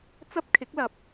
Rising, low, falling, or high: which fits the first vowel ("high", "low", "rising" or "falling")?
high